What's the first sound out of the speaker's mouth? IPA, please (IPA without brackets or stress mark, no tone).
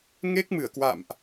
ŋ